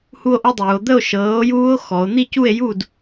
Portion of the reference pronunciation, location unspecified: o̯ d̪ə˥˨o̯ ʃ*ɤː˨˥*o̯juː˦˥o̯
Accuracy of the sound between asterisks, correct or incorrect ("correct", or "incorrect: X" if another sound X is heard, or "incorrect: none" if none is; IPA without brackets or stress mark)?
correct